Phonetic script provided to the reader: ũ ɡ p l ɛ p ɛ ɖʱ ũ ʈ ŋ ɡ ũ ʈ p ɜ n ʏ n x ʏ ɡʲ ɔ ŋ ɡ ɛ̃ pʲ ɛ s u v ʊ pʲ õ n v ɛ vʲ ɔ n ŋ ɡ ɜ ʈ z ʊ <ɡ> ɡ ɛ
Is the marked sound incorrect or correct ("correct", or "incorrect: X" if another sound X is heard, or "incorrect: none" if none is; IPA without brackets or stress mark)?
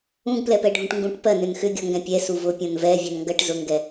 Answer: incorrect: ŋ